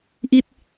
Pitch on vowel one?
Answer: falling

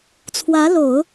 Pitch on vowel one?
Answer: rising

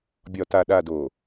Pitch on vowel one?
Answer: low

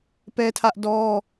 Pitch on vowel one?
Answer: high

